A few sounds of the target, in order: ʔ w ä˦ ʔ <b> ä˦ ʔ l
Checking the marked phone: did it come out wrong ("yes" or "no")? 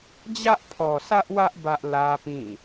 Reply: no